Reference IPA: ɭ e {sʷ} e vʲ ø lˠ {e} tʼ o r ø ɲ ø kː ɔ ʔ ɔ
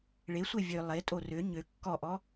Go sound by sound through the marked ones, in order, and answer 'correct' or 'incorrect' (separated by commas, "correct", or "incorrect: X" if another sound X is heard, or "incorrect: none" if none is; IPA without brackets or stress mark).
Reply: correct, correct